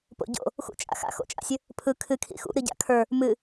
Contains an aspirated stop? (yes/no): yes